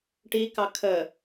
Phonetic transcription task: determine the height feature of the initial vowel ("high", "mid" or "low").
high